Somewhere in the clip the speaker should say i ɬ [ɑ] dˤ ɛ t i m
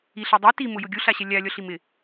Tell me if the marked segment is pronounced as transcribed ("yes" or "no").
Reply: no